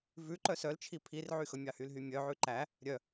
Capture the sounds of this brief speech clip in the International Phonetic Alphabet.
v ʉ ǃ œ s œ l t͡ʃʰ i pʰ i r ʕ y x ɵ mʲ ɑ h y l ɦ y mʲ œ ʕ ʉ ǃ æ | ɾʲ œ

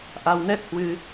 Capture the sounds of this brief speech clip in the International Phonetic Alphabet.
ʔ a˧ w n ɛ˦˥ t̚ h w ɨ˧

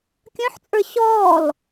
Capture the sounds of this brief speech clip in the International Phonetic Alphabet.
kʲ œ̃ ħ t͡sʼ ə˞ ɕ ɔː l

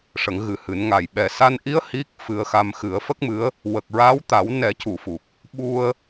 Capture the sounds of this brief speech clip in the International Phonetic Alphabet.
ʂ ə˨˩˦ ŋ ɣ ɨ˨˩ h ɨ˨˩˦ n ŋ a˨˩ j ɓ ɛ˨˩ s a˧ n ʔ i˧˥ ə̯ h i˦˥ k̚ f ɨ˧ ə̯ x a˧ m x ɨ˨˩˦ ə̯ f ə˦˥ k̚ m ɨ˧˥ ə̯ | w ə˨˩ k̚ ɹ a˧˥ w t̪ a˨˩˦ w n ɛ˨˩˦ c u˨˩˨ f u˨˩ k̚ | ɓ u˧ ə̯

